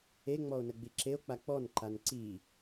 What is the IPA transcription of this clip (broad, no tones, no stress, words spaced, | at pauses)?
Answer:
eŋ͡mɔo̯ nəɡ͡biǁeo̯k͡pa k͡pɔnǃan ǀi